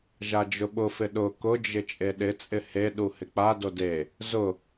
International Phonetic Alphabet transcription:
ʒ a d͡ʒ ʊ ɓ ʊ f ɪ ɗ ʊ k ʊ d͡ʒ ɪ t͡ʃʼ e ɗ ɪ t͡sʼ ɪ h e ɗ u h ɪ k͡p a d o d e | z ʊ

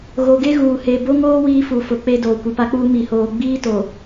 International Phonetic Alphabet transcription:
ɣ o˨ ɡ e˦ ɣ uː˨ h e˨ b o˦ ŋ oː˦ w iː˦ f u˨ f ʊ˨˦ k͡p e˦ d oː˨ kʷ i˨ p a˦ k͡p uː˦ m i˨ h oː˨ ɡ͡b iː˦ t o˨

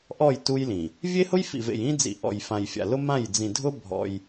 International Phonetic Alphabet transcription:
ʔ ɔ˦˨ j t u˦ j l ĩ˨ | vʲ e˦ h ʊ˦ j f ḭ˨ v ḛ˨ j ĩ˦ d͡z ḭ˨ ʔ ɔ̰˨ j f ã˨ j fʲ a̰˨ l ʊ˦ m ã˦˨ j d͡z ĩ˨ dʱ ʊ˦ bʱ ɔ̰˦ j

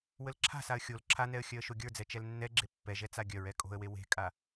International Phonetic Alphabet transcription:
w ə l ǁʰ a̤ s a ə̯ xʲ o l ǁʰ a n ɛ ə̯ xʲ œ ə̯ ʃ o ɡʲ ə˞ d͡z ɛ t͡ʃ ɛ l nː ɛ ɡ͡ǁ e pː ɛ ʒ ɛ t͡s a ɡʲ œ ɹ ɛ kʼ o̤ ə̯ w e w e̤ kʼ a

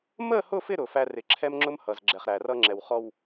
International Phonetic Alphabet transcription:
m ə˦˨ h ʊ˦˨ f ɪ˦˨ ɾ ʊ˨ f æ˦ r ɪ˨ ǁʰ ɛ˦ m ŋ͡ǁ ʊ˦ m h ʌ˨ z ɡ͡ǁ ɛ˨ χ ɾ æ˨ r ʌ˦ ŋ͡ǁ ɛ˨ w χ ɔ˨ w

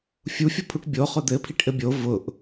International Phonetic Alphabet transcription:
fʲ u fʲ o pʰ u ʈ bʲ o χ ʊ d̪ ɘ pʰ i ʈ ʔ ɘ bʲ o v ʊ ʔ

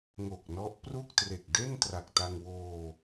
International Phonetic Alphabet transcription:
ŋ o˨˩ k̚ n ɔ˦˥ ʔ p r u˥˩ k̚ t r e˨˩ k̚ d e˥˩ n t r a˨˩ k̚ t a˧ ŋ w oː˧

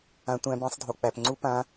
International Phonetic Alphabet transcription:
ã˦˥ tʷ æ̃˦˥ b ĩ˦˥ sˤ dʱ o˨ k͡p æ˨ p ŋ͡ǀ u˦˥ p ã˦˥

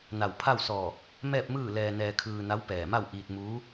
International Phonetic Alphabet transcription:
n a˧˩ w pʰ a˥˨ w s ɔː˧˩ | m ɛː˥˨ p̚ m ɯː˥˨ l ɛː˧ n ɛː˧ kʰ ɯː˧ n a˧˥ w p ɛː˧˩ m a˥˨ w ʔ iː˧ t̚ m uː˧˥

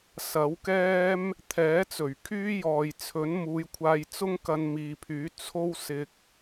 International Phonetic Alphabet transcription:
s ɐ˨˥ w k ɛː˥ m | t̪ʰ ɛː˨˥ t͡s ɵ˨˩ ɥ kʰ yː˥ j ɔː˨ j t͡sʰ ɵ˨˥ n m uː˨˧ j kʷʰ aː˧ j t͡s ʊ˥ ŋ k ɐ˧ n m iː˨ pʰ yː˨˥ t͡sʰ o˥ w s ɪ˧ k̚

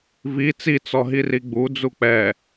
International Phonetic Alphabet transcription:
v i t͡s i t͡s ɔ ɦ i r i ɡ͡b u d͡z u k͡p ɛ

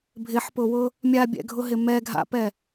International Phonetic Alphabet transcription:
bʱ ɪ ħ p ʊ w ʊ | mʲ a bʲ ɛ̰ ɡʱ ʊ ɦ ɪ m ɛ ɡʱ a̰ p ɛ

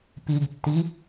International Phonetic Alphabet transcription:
p i ɡ tː i

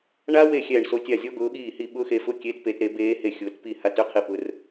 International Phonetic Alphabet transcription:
ɳ a˦˥ w e˥˩ xʲ ɛː˥˩ ɳ s o˦˥ tʲ a˥˩ zʲ ɔ˦˥ ɡ ʊː˨˥ ɠ iː˥˩ h i˥˩ ɓ ʊː˦˥ x e˨˥ f ʊ˥˩ kʲ e˦˥ t p e˨˥ t ɾ e˨˥ b eː˦˥ h e˥˩ xʲ ʊː˨˥ t p i˥˩ h a˦˥ t ʏ˥˩ qʰ i˥˩ p ʊ˦˥ r

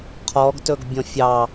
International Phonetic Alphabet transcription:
qʰ ɔ ɡ t ɵ ɡ bʲ ɔ̃ fʲ ɑ

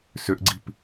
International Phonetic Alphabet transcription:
s ʏ ʔ ɡ͡ǀ i̤ p

